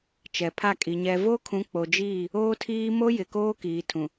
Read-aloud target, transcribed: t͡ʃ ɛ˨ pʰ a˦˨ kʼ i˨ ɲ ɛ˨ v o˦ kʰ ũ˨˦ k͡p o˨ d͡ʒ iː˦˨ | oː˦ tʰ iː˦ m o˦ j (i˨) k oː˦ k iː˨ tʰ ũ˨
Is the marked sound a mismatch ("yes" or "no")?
yes